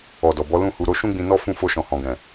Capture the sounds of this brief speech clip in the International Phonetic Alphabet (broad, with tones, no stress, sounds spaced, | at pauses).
ɔ˨ d ɔ˨ b ɔ˨˦ l ũ˦˨ h u˧ ɾ o˦ ʃ ũ˦ ɡ͡b ĩ˧ n ɔ˦ f ũ˦˨ f o˧ ʃ ɔ̃˨ h ɔ̃˨ ɡ ɛ̃˨